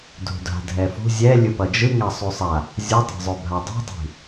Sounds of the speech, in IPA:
dʱṳdʱa̤dʱɛfṳ zʲɛlʲɯ pʌd͡ʒɯ ŋasˤusˤa | zʲɯtˤɛ̤zˤobʱa dˤi̤dˤi̤

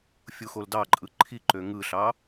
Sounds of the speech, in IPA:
fʲuxoldɑǃʼɯ ǃʰiǃø ŋɯɬɑ

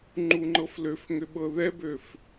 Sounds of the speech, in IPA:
ŋ͡ǃuŋ͡ǃɤfløf ŋʏɓɤðɛbøf

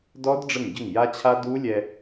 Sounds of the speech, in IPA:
dɔ˦˥d ɖ͡ʐə˧˩ŋɟə˧˩ŋja˧t͡ɕʰa˧ du˦˥lʲɛ˧

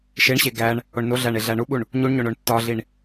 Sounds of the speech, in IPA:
ʃeɳɕe ɡæɳ | oɳnoɮæɳ eɮæɳuɓuɳ | ɲuɳɲoɳ oɳtːɒɮiɳ

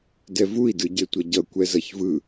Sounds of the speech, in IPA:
dɛvui̯ dɯɟetʷʌɟʌ kʷɛzʌçvɯ

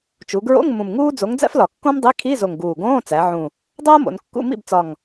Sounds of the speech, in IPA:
t͡ʃu˩˧ɡɹo̰˧˥˧ŋ mũ˨˩mŋuː˥ d͡zo˨˥ŋd͡zæ̰˥flɒ˨˩ kːõ˥mdˤi˧˥˧ kʰi˧˥˧zo˨˩ŋ ɡuː˨˩ɡõː˧˥˧t͡sæ˩˧ʕũ˨˩ | dˤoː˥mo̰˩˧nkːṵ˧˥˧ mḭ˥˩bt͡sɒ˨˩ŋ

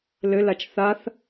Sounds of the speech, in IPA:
lɘlat͡ʃ θaθ

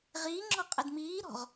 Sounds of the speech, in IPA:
ʁiːŋ͡ǁɔ qʼɘdmiːɾɔ̤ʁ

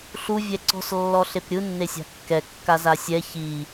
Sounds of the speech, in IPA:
ɬu vʲɛǀɔ̤s lːɔɬepɾʲɯ nːesʲa̤kːɛ kːazasʲɛ çi

